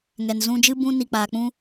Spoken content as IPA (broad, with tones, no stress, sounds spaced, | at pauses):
ŋ ɛ˨ n z ũ˧ d͡ʒ ɨ˦ b ũ˧ n i˨ k͡p aː˨ k͡p ũ˦